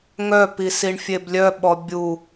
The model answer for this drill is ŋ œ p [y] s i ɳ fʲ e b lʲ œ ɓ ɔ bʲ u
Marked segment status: incorrect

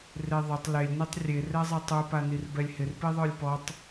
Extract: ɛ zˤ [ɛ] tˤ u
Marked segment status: correct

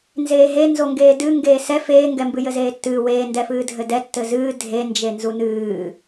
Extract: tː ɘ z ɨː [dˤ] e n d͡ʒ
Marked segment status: incorrect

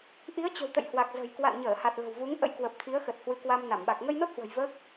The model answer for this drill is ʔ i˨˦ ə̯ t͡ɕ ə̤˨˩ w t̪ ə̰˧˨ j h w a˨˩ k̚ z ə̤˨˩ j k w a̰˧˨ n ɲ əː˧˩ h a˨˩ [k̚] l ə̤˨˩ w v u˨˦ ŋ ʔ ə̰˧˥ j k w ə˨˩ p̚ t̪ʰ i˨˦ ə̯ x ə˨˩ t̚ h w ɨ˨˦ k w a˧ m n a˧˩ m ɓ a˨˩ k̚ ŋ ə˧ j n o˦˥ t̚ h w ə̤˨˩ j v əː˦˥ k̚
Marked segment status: incorrect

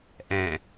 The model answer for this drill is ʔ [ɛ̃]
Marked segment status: correct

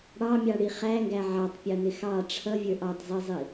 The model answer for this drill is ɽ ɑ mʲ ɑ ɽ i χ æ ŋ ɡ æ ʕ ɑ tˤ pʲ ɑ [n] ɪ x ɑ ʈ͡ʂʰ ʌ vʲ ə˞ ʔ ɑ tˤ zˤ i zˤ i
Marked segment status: correct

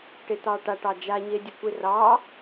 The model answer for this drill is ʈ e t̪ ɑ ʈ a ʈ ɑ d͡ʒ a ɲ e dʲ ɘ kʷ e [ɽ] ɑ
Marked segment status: incorrect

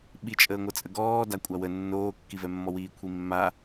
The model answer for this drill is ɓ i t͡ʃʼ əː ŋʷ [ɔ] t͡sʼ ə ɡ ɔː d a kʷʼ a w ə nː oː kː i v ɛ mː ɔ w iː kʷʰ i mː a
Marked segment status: incorrect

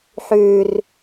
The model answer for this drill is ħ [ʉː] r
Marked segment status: correct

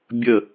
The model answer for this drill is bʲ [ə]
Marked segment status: correct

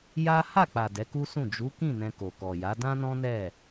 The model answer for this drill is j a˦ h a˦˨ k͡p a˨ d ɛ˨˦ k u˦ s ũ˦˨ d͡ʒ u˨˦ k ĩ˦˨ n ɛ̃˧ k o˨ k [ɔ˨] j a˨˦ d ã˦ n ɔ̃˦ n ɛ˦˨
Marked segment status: correct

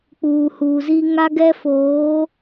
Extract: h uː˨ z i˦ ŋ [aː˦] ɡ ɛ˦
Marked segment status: incorrect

